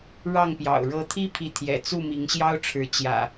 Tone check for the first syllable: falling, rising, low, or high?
falling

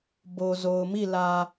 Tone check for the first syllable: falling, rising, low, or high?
low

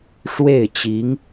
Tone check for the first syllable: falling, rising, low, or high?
falling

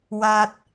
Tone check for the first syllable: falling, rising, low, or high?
low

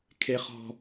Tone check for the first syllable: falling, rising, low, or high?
high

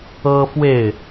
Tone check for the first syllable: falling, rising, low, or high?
high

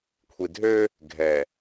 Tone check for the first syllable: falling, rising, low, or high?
low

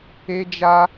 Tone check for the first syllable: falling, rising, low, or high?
high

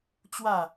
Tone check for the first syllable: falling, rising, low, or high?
falling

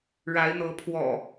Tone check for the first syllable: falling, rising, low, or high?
rising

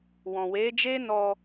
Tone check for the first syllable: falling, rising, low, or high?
low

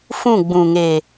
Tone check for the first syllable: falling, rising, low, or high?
falling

